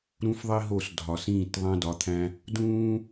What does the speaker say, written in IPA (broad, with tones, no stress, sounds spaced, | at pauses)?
ɾ ũ˦ f ðˤ i˦ ɦ o˦˨ s dʱ ɒ˨ s ĩː˦˨ t ðˤ æ̃˦ d ɒ˨˦ t̪ʰ æ̃˦ | d ũː˦